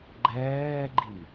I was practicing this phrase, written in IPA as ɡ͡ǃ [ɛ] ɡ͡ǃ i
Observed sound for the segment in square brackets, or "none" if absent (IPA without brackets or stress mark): ɛː